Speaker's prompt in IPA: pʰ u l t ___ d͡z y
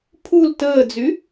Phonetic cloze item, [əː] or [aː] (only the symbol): əː